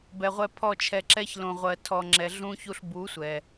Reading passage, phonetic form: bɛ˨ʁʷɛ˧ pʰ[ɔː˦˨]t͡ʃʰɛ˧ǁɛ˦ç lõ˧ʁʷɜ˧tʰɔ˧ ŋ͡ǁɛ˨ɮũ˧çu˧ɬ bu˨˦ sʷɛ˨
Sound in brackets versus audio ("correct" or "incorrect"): incorrect